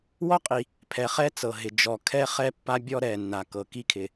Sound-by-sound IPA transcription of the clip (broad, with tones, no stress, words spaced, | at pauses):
wɔ˥qʼi˩ | pʰɛ˩χɛ˥ t͡sɤ˩ɦɪ˩ d͡ʒɔ˩ kʰɛ˥ χɛ˥pːa˥bʲɔ˥ ɾɛ˩nːa˩ kɤ˩ki˥kʰɪ˩